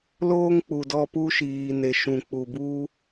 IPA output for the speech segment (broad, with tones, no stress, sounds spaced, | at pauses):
l oː˧ ŋ k͡p u˨ d ɔ˧ p u˧ ʃ iː˨ n e˨ ʃ ũ˨ k͡p u˨ b u˧